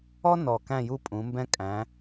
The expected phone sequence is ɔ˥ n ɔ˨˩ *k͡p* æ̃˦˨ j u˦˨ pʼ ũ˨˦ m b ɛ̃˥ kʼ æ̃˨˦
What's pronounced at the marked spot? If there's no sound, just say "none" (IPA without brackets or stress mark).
k